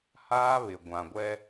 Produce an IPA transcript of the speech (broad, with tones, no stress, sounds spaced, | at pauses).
h aː˦ β ɪ˨ ɡʷ ã˨ ɡʷ ɛ˦